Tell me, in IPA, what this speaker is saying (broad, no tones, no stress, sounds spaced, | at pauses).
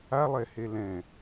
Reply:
a lˠ ɛ h e l ɛ̃